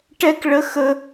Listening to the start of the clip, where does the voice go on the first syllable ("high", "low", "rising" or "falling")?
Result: high